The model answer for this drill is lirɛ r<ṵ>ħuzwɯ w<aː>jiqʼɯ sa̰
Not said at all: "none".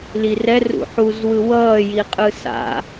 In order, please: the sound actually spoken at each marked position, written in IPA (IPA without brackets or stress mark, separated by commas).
ṵ, ʌː